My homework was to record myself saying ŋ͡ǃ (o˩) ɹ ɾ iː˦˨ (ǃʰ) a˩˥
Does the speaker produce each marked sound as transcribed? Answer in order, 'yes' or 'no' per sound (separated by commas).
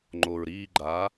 yes, no